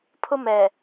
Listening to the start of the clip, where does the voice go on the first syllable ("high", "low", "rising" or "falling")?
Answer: high